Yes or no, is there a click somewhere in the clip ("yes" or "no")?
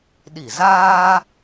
no